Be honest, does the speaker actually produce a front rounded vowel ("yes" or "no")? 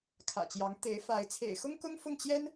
no